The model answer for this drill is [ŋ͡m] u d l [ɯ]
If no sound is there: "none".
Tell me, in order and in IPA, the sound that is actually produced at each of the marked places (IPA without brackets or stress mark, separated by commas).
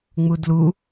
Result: ŋ͡m, u